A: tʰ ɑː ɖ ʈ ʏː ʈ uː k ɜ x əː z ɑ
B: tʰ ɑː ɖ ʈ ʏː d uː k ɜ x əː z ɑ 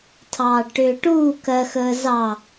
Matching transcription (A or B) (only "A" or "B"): A